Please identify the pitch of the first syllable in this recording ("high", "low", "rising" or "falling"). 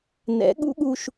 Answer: rising